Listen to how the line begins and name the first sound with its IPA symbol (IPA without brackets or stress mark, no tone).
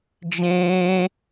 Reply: d͡ʒ